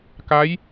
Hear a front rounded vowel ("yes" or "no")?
no